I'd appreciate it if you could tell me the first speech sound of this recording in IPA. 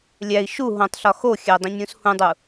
lʲ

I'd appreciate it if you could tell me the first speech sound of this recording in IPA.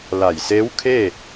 l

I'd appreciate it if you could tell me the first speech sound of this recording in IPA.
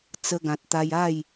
t͡s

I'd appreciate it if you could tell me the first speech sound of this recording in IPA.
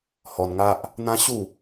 h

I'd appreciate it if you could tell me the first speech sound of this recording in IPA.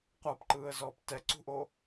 qʷ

